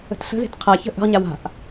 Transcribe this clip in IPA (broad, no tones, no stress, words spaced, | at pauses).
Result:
ə̤tɬə̤ze̤t qʰaçə̤ ʔə̤ʁɲa wa̤ʔ